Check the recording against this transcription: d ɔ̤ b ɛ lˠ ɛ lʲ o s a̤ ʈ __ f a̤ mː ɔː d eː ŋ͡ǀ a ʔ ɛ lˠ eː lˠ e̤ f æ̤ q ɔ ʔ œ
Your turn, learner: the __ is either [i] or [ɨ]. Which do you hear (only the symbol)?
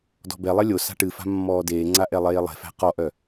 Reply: ɨ